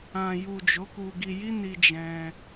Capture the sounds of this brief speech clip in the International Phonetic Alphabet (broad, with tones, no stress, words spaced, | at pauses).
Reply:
ã˨ju˨ d͡ʒo˨˦ku˧ɡi˧ ji˦ni˧ d͡ʒɛ̃˧